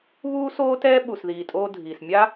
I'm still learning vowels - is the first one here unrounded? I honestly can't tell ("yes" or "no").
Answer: no